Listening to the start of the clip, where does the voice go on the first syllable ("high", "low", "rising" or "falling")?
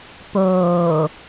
low